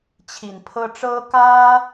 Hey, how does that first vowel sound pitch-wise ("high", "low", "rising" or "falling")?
low